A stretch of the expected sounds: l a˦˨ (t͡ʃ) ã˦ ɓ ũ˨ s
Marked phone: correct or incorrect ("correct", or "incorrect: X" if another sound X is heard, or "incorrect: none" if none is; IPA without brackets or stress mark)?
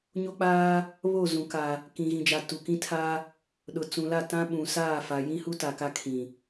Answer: incorrect: t